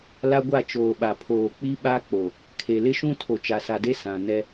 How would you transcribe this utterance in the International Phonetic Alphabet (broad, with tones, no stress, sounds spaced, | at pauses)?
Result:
l a˦ ɡʷ a˦˨ t͡ʃ oː˨ ɓ a˨ pʰ oː˨ k͡p i˦ ɓ a˦ k͡p o˨ | kʰ e˨ l ɪ˦ ʃ ũ˦ tʰ o˨ t͡ʃ a˨ s a˨ d e˦ s ã˨ n ɛ˦